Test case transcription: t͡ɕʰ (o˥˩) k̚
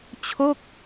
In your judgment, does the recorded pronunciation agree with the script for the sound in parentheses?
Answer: yes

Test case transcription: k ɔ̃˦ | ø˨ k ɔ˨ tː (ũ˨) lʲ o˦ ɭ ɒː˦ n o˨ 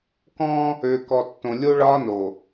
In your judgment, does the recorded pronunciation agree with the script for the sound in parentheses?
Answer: no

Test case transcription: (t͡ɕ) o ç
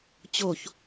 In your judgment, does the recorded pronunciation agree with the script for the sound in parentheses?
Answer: yes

